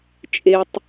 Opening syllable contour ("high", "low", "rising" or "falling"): high